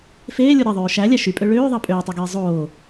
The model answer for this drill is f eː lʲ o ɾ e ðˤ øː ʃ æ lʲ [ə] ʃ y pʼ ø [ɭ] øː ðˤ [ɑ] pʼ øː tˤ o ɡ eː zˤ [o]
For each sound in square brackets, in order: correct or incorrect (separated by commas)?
incorrect, correct, correct, incorrect